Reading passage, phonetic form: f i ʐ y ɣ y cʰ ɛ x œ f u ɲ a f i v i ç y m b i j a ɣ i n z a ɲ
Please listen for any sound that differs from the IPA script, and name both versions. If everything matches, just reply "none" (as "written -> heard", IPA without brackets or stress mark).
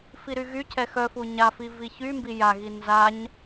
ʐ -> ɾ